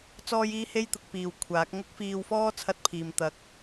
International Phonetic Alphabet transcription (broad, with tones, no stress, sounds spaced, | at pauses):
t͡s ɔː˥ j iː˥ h e˥ j t̪ ʊ˨˥ k̚ p iː˨ w kʷʰ aː˨˥ k̚ ŋ ʊ˥ k̚ f iː˧ w f ɔː˥ t͡sʰ ɐ˥ t̚ pʰ iː˨ m t̪ ɐ˧ k̚